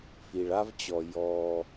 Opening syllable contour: low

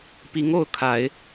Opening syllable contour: rising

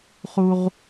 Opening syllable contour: high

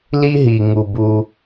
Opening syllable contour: high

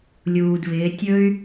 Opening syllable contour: low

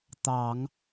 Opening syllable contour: low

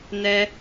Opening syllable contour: high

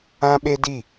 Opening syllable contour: high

